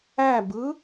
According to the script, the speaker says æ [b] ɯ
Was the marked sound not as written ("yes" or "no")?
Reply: no